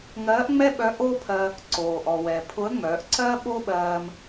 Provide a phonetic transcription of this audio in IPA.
ŋɜː˧˥ʔŋ͡mɛ˥ɓœ˧˥ ʔoː˥pʰɜ˧ | ǀoː˩ʔɔ˩wɛ˩ pʰʊ˧˥ə̯ŋ͡mœː˩˧ʔǀɜː˥ ɓo˥ ɓɜː˧m

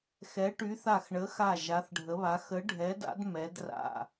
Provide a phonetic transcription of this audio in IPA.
xɛ˨˦ʈy˨˦θa˧˩x ɳə˨˦xa˧˩ ʒa˨˦θɖʱə˨˦βa˨˦ xə˨˦ɖʱɛ˨˦da̰˨˦d mɛ˨˦d ra̰˧˩

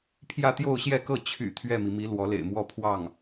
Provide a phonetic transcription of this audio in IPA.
pʰjä˥˧t̪jo˥˧ʊ̯ɕjɛ˥˧kɤ˥˩ t͡ɕʰy̰˨˩ t̪ʰɥɛ˥˩mi˩mi˧˥ lwɔ˧˥lḛ˨˩ɪ̯mwɔ˥ pʰwɑ˥˩ŋ

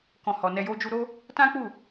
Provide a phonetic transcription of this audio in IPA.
kɔ̃˨hɔ˨ nɛ˧jo˦d͡ʒu˦ ɾo˦ | tã˦k͡pu˦˨

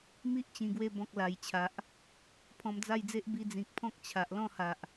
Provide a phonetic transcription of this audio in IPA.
mi˦ʔt͡ɕĩ˨˩ɡwe˧bɔ̃˨k̚ la˨˩jt͡ɕʰa˨ʔ | pʰɔ̃˧md͡za˥˧jd͡ze˦ʔ bi˧d͡zĩ˨k̚pʰɔ̃˦k̚ t͡ɕʰa˨ʔ lɔ̃˥˧ha˨ʔ

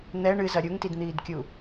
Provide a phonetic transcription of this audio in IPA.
n̪ɛ ɳɨzɐ ɾʲuŋtidn̪iːdkʲu

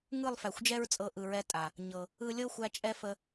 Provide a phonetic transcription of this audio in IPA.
ŋɯ˦˨lˠfæ˨xʷd͡ʒɛ˦ɹt͡sʼɤ˧ ʔɯ˨ɹɛ˧ tʼa˨ | ɲɤ˨ | ɯ˧lʲɤ˦xʷæ˧ t͡ʃʼɛ˦ fə˧

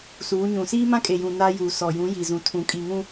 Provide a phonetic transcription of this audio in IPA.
suː˨˦ɲũ˨ siː˦mã˦kʼe˨jũ˨ na˦juː˨sɔ˨ jũ˨˦ ji˨zũ˨ tʰũ˨kʼi˨ŋũ˦

